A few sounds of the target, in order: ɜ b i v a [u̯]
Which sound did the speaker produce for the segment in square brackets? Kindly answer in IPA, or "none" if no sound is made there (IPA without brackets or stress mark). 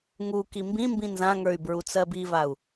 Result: u̯